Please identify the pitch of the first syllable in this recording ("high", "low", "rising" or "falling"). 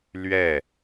falling